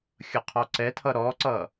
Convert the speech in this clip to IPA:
xʲ ʌ qʰ ɔ ǀ ɛ tʰ ʌ ɾ ɔ ǀ ʌ

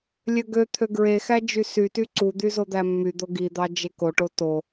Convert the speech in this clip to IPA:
lʲ ø ɡ ø t̪ʰ ø ɡ ɹ e x æ d͡ʒ y s y t y ǀ u d̪ y z o d̪ æ mː y d̪ o ɡ i d̪ ɑ d͡ʒ e k o ʈ o t o

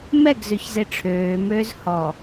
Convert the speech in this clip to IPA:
m ɛ ɡ z ø ç z e ʈ͡ʂʰ øː m øː z h ɔ

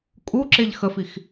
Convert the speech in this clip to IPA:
kʼ u ǁ e ʎ x ə f i x

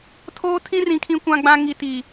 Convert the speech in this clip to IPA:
tʰ oː˦ tʰ ĩ˦ r ĩ˦ kʰ ĩ˦ kʷ ã˦ ɡ͡b ã˦ ŋ i˦ t i˦

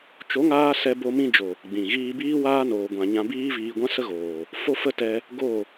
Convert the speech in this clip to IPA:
t͡ʃ o˨˦ ŋ aː˧ s ɛ˧ b o˧ m ĩ˧ d͡ʒ o˨ | ɡ͡b ĩ˨ ɣ iː˧ b iː˦ w aː˦ n oː˧ ɡʷ ã˧ ɲ ã˧ b iː˦ v iː˧ ɡʷ ã˦ s ə˦ ɣ oː˨ | f o˦ f ə˦ t ɛ˧ | ɡ o˦˨

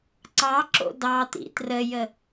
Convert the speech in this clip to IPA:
ǀ ɑ ǁ o̰ d ɑ t̪ ḭ t r ə j ə

